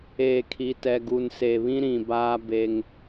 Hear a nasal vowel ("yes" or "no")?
yes